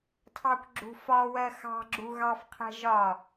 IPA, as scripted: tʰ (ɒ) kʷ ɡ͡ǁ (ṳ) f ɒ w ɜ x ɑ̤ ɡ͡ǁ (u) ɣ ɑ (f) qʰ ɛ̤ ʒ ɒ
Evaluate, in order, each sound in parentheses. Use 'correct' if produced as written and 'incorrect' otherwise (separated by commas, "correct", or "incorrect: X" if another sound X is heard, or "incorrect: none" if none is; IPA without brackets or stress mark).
incorrect: ɑ, correct, correct, correct